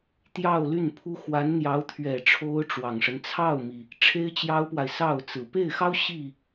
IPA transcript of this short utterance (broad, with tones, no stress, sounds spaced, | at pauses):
t̪ j ɑ˥˧ ʊ̯ l y˥˩ n pʰ u˥ x w a˧˥ n n̪ j ɑ˧˥ ʊ̯ t̪ʰ ɥ ɛ˨˩ ʈ͡ʂʰ o˥ ʊ̯ ʈ͡ʂ w ɑ˨˩ ŋ ʂ ə˦ n t͡sʰ ɑ˥˩ ʊ̯ m i˩ | ʈ͡ʂʰ e˥ ɪ̯ t͡ɕ j ɑ˥ ʊ̯ p w a˨ ɪ̯ s ɑ˥˩ ʊ̯ t͡s ɹ̩˨˩ p e˥˩ ɪ̯ x ɑ˥ ʊ̯ ɕ i˥˩